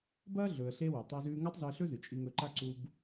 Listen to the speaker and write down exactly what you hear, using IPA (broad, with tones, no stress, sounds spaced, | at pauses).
b ɐː˥ ɮ ɵː˩ ə̯ ɬ e˧ w ʉ˩ tˤ ɵː˧ z ʉː˧ ŋ ɐ˥ tˤ z ɵ˧ ə̯ ɬ ɵ˥ z ɨ˩ t͡ʃʼ i˧ ŋ ɵ˧ ǃ a˥ ǀ u˧ b